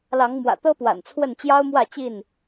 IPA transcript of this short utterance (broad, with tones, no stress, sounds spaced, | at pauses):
l ɑ˨˦ ŋ m w ä̰˨˩ t̪ ɤ˦ p w a̰˨˩ n t͡sʰ w ə˥˨ n t͡ɕ j ɑ˦ ʊ̯ m w ä˥˨ t͡ɕ i˥˨ n